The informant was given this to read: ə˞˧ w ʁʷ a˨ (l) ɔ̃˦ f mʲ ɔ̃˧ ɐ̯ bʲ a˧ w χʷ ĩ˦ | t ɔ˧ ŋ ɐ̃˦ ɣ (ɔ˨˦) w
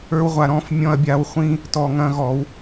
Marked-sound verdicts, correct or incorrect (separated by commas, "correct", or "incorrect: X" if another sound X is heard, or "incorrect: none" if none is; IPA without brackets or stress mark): incorrect: ɾ, correct